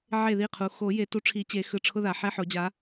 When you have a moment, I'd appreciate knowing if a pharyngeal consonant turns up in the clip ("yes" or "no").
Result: yes